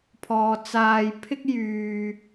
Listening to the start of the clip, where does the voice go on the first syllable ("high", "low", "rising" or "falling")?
low